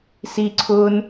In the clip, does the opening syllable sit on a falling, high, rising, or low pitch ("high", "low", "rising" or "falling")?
high